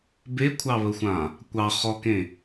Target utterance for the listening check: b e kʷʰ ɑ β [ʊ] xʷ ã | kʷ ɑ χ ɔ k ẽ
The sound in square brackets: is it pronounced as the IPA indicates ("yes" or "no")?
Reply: no